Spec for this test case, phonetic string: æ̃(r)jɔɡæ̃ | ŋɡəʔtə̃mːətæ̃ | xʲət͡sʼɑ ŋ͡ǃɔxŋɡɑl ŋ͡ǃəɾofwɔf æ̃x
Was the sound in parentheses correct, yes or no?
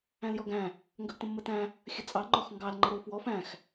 no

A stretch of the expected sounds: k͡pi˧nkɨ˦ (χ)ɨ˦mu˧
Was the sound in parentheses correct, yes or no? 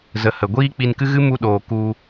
no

